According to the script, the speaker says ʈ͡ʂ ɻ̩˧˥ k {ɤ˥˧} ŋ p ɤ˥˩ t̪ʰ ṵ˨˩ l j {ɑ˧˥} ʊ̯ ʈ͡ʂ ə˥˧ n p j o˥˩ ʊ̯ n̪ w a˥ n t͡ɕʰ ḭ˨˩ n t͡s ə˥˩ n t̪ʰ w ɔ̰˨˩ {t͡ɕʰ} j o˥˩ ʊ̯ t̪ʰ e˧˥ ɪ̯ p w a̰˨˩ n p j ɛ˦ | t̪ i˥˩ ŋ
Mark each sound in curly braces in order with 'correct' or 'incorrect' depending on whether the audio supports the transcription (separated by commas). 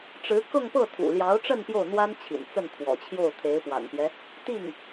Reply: correct, correct, correct